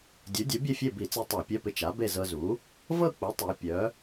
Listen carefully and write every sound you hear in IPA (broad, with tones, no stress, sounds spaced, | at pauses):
dʲ u˩˥ dʲ u˩˥ bʲ e˥˨ fʲ e˥˨ b i˧˩˧ t͡s i˧ tˤ a˧˩˧ pʲ œ˧˥˧ p ɪ˧ t͡ʃ a˩˥ b e˥˨ z ɤ˧ z u˩˥ | v ɤ˥˨ k͡p u˩˥ tˤ i˩˧ pʲ œ˩˥